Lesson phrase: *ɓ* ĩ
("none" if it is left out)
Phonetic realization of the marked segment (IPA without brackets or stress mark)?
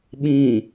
ɓ